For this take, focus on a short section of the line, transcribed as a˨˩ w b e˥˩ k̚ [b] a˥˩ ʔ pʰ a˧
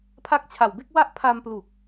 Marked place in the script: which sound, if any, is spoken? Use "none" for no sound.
w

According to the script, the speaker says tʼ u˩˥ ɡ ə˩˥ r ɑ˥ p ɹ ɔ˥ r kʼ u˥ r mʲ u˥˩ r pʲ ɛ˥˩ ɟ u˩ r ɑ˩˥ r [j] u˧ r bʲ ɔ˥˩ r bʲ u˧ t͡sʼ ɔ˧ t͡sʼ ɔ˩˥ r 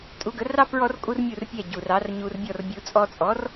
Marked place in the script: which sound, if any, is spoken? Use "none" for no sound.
ɲ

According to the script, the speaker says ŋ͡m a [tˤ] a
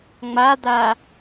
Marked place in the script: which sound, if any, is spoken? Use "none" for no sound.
d̪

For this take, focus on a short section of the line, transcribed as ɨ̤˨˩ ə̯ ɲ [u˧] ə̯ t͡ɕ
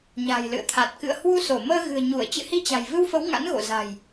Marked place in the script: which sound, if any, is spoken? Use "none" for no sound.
u˧˩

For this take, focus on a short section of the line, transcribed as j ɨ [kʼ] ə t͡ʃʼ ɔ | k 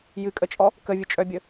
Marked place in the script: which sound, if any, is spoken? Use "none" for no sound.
kʼ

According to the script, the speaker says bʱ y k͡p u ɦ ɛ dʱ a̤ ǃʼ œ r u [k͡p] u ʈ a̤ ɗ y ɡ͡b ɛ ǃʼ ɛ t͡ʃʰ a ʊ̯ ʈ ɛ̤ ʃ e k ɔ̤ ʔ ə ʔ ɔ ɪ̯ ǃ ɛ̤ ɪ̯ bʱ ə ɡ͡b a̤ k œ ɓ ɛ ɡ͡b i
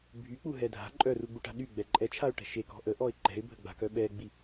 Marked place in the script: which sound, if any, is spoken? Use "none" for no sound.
ɡ͡b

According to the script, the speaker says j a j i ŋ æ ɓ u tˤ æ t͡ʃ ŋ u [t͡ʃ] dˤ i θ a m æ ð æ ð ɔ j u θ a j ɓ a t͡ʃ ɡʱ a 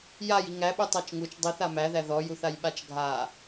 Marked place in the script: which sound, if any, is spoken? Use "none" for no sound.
t͡ʃ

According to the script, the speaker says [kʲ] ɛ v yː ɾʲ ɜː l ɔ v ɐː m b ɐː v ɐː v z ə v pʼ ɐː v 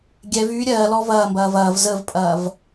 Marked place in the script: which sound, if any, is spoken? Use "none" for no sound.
ɡʲ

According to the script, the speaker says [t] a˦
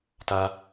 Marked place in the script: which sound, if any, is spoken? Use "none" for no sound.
t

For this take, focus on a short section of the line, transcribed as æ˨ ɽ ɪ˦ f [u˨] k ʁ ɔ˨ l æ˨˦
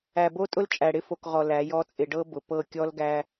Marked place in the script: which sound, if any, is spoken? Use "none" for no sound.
o˨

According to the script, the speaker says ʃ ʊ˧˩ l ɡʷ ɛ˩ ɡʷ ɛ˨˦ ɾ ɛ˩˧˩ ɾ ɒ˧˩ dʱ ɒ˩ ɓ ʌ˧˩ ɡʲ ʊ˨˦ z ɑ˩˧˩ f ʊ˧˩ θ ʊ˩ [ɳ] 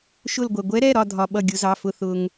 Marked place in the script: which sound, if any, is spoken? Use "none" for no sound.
ŋ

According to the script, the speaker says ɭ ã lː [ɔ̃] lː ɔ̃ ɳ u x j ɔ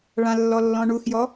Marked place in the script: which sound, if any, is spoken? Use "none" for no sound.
ɔ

